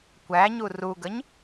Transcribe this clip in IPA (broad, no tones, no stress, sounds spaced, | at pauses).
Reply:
kʷ æ ɲ u r u ɡ ə ɲ